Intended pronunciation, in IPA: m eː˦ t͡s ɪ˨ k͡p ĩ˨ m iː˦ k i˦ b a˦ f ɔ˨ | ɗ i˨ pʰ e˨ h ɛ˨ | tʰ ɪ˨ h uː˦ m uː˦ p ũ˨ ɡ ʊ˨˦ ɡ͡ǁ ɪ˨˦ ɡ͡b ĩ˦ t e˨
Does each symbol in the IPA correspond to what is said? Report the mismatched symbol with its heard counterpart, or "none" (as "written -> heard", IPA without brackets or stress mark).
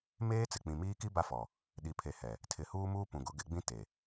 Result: ɡ͡ǁ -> ɡ